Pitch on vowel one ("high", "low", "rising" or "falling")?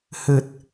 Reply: low